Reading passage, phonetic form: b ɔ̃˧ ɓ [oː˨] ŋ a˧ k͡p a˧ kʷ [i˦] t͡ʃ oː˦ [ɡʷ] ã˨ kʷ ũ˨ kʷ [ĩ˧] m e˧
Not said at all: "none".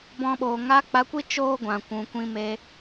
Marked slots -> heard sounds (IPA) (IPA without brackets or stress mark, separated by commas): oː˨, i˦, ɡʷ, ĩ˧